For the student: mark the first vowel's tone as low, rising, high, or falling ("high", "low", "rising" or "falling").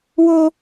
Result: high